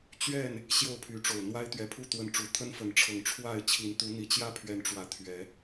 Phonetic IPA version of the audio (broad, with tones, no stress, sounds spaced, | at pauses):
t͡ɕ ɥ ɛ˥˨ n | ɕ j o˥˨ ʊ̯ pʰ y˨˦ ʈ͡ʂ o˨˩ ʊ̯ n̪ w a˦ ɪ̯ t̪ ɥ ɛ˨˦ pʰ u˥˨ t̪ w ə˨˦ n ʈ͡ʂ u˨˩ t̪ʰ ə˦ n f ə˨˦ n ʈ͡ʂʰ ɤ˨˩ ŋ ʈ͡ʂʰ w a˥˨ ɪ̯ t͡ɕʰ i˨˦ n t̪ u˨˦ n̪ i˨˩ t͡ɕ j ä˥˨ pʰ ɥ ɛ˨˦ n ʈ͡ʂ w ä˨˩ t̪ʰ ɥ ɛ˨˦